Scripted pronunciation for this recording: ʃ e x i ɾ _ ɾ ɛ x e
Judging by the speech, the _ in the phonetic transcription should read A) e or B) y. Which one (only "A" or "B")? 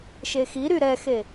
B